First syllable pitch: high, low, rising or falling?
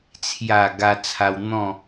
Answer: low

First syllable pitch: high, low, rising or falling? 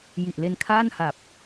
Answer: low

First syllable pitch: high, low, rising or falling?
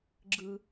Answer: low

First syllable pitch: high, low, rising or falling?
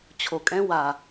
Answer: low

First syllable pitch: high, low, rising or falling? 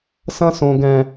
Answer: high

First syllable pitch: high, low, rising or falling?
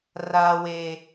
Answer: low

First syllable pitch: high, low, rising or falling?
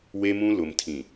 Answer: high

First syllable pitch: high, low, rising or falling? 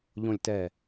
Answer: low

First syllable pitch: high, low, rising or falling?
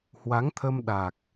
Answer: rising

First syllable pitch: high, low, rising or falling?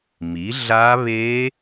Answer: rising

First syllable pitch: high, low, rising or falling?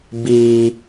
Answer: high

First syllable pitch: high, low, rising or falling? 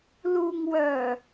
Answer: low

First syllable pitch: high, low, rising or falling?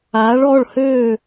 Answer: rising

